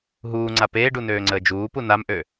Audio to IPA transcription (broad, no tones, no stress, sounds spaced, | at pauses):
ɦ uː ŋ͡ǀ a p eː ɖ u n øː ŋ͡ǀ əː d͡ʒ uː p u n a m ʔ ø